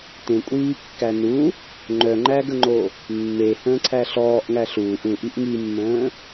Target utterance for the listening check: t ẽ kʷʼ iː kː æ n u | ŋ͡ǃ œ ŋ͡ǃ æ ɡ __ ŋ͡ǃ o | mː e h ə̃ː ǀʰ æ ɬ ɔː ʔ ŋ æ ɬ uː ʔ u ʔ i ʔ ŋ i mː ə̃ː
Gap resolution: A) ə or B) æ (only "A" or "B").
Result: A